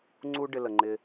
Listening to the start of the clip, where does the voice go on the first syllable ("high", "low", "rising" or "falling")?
high